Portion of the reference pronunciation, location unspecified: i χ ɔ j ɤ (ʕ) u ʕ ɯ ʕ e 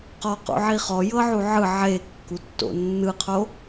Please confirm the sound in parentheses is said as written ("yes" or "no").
yes